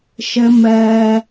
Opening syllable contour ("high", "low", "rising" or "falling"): low